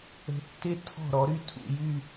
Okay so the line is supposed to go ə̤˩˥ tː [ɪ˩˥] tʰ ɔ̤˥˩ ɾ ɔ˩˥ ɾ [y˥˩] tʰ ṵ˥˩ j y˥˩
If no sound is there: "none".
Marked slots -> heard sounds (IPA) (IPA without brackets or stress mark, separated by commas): ɪ˧, y˥˩